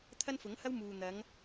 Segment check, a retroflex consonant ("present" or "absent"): absent